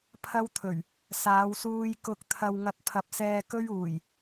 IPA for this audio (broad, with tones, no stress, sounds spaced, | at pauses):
pʰ ɐ˥ w t̪ʰ ɵ˨˩ ɥ | s aː˨˧ w s uː˧ j k ʊ˧ k̚ t̪ʰ ɐ˧ w ŋ ɐ˧ t̚ pʰ ɐ˨˥ p̚ s ɛː˧ k ɵ˥ ɥ uː˨˩ j